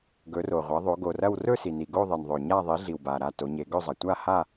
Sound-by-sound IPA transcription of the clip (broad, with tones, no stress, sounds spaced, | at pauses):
ɡ ɵ˩˧ r o˩ ʁʷ ɐ˩˧ ðˤ o˩˧ ɡ o˩ r ɐ˦˨ w r ɵ˦˨ s i˩ n i˩ ɡ o˦˨ ðˤ e˩ n ðˤ ɵ˩ ɲ a˦˨ ðˤ i˩˧ ɮ i˩ w b a˩ ɾ a˦˨ t o˩˧ ɲ e˩˧ ɡ ɵ˦˨ zˤ ɐ˩ tʷ a˦˨ h a˦˨